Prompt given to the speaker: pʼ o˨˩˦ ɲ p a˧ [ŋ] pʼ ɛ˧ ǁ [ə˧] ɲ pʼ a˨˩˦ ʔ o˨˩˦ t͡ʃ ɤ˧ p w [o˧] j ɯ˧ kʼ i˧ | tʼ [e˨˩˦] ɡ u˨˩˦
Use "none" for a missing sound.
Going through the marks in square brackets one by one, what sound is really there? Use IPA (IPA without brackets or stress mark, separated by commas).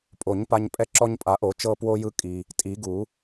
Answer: ɲ, ɔ˧, o˧, i˨˩˦